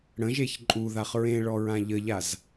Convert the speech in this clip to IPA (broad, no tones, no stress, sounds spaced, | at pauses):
ɽ ə̃ ʒ e ç ǃʼ u ð a χ ɹ ẽ ɭ ɔ ɹ ã ʎ ə ʎ a z